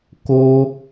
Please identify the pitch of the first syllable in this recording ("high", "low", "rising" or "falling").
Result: high